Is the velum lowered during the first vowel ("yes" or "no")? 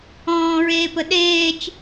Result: yes